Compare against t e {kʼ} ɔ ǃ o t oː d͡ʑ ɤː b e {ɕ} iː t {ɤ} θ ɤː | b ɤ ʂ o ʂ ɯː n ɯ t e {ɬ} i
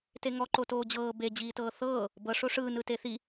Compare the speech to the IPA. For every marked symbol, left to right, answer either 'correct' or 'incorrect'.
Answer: incorrect: ŋ, incorrect: d͡ʑ, incorrect: ɤː, incorrect: θ

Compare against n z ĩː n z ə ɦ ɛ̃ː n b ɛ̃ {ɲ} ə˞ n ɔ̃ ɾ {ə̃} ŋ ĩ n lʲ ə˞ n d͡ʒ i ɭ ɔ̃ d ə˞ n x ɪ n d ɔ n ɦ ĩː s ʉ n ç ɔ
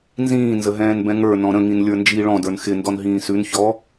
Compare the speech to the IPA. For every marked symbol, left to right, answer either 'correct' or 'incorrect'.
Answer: incorrect: ŋ, correct

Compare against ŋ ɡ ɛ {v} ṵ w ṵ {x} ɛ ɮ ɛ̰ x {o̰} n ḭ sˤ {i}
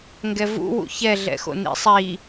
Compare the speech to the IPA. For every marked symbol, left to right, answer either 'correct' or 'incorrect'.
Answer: correct, incorrect: ç, correct, correct

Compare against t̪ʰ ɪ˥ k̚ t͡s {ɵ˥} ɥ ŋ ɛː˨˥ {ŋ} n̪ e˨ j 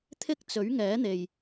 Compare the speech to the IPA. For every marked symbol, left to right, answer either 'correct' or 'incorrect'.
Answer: incorrect: ɵ˨˥, incorrect: none

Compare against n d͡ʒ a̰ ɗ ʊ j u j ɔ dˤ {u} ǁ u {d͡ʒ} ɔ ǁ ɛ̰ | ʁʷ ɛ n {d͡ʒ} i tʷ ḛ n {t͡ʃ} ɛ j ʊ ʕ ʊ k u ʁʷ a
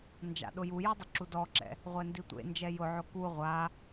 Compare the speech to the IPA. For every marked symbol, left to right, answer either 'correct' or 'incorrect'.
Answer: incorrect: ʊ, incorrect: d, incorrect: d, incorrect: d͡ʒ

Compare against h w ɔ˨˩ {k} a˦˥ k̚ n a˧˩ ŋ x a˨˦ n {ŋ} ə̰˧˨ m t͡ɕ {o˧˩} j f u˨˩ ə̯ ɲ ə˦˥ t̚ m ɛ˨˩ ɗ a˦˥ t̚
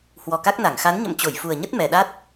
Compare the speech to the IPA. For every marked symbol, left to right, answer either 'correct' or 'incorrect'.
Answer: correct, incorrect: ɲ, correct

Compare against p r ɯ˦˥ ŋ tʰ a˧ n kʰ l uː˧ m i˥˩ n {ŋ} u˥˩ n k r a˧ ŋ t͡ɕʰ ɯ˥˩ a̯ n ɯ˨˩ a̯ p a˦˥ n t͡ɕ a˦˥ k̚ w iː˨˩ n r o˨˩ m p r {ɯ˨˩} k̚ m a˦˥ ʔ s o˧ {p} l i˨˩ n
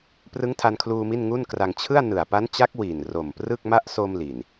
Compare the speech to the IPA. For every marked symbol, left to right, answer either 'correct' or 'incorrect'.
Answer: correct, incorrect: ɯ˥˩, incorrect: m

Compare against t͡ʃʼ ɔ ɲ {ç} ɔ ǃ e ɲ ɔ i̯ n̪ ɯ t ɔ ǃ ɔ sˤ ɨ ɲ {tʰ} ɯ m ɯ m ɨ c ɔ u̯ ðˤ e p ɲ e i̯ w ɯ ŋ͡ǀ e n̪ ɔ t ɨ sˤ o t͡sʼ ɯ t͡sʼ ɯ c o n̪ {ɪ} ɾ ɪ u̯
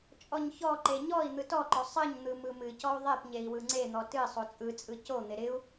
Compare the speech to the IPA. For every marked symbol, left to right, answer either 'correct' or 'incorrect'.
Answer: correct, incorrect: n̪, correct

